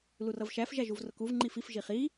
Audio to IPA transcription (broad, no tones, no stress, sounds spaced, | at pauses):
l u r ʌ v ʃ æ f ʒ æ ʒ u v r ʊ k u v ŋ͡ǃ i f i f ʒ i χ i